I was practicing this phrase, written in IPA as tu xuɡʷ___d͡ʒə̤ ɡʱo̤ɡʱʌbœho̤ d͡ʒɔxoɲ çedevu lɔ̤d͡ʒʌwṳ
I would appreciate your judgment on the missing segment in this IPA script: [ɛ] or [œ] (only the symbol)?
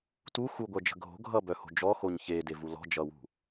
œ